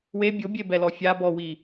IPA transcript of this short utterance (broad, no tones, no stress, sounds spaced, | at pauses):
w e bʲ o bʲ e b ɛ l ɔ fʲ a b ɔ w i